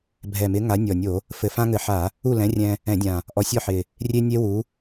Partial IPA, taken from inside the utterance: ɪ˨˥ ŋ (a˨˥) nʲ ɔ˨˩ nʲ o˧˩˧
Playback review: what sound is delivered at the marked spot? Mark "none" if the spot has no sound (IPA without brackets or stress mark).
a˨˥